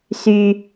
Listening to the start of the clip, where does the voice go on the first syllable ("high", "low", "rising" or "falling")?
high